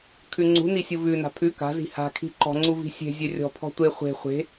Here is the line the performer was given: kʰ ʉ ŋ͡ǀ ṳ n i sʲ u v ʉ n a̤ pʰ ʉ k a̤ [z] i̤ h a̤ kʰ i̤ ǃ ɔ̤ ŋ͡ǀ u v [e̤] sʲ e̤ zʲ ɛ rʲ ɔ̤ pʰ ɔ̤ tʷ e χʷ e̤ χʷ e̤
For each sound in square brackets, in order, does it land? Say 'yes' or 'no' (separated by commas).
yes, no